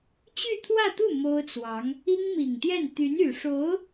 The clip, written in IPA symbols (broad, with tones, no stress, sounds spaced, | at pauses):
t͡ɕ y˥˧ t̪ʰ w ä˥˧ t̪ u˥˩ m o˥ ʊ̯ t͡s w ɑ˧˥ ŋ | i˥ ŋ m i˨˩ ŋ t̪ j ɛ˥˩ n t̪ y˧˥ n y˨˩ ʂ o˧˥ ʊ̯